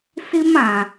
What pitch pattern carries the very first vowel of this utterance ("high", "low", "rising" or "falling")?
high